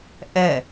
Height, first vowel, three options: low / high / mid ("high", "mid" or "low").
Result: mid